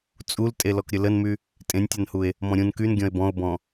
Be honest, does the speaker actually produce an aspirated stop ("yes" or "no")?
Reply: no